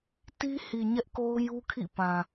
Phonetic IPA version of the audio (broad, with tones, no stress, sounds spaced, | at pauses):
t i˦ h i˨ ɲ ɛ˦ ʔ k o˦ ʊ̯ j u˦ kʰ ḭ˦˨ p ã˨